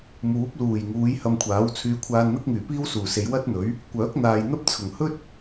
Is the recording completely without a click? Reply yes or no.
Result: yes